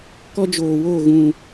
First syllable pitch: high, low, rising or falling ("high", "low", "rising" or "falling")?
high